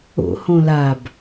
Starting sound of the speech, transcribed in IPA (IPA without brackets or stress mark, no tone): o̰